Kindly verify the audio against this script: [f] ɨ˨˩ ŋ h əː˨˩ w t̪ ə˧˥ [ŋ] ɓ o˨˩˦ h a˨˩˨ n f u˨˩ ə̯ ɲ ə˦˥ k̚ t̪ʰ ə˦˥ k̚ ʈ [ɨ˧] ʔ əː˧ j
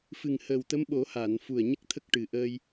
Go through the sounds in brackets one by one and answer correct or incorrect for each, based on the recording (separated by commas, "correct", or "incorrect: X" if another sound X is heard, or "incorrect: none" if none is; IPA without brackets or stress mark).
correct, incorrect: m, incorrect: ɨ˨˩